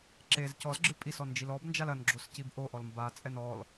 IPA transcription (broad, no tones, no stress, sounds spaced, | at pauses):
ǁ e z c ɔ z ɡ͡ǁ ɨ pʼ i s ɔ n d͡ʒ i l ɔ b n d͡ʒ a l ɐ n ɡ͡ǁ o s c i b ʔ o ʔ ɔ l m b a t͡sʼ ɛ n ɔ l